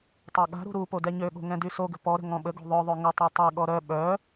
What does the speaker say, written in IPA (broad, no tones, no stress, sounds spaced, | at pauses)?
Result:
tˤ a ɠ a̤ ɾ ṳ ɾ u p o d ɛ ɲ ø ɠ o̤ ŋ ɛ̃ d y s o ɡ ə̤ p ɔ ɾ ə̤ ŋ ɔ̃ ɓ ə ɡ o̤ ðˤ œ ðˤ ø ŋ ə tˤ a tˤ ɛ ɠ ɔ ɾ œ ɓ œ